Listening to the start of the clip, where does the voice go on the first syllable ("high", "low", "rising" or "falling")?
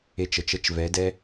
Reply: high